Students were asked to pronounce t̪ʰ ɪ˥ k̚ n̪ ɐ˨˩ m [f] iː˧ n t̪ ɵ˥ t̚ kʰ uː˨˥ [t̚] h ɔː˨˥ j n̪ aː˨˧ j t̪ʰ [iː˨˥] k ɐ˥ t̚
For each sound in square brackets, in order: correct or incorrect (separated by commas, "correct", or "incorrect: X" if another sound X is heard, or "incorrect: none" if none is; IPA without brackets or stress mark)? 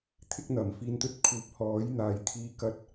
correct, incorrect: p̚, incorrect: iː˧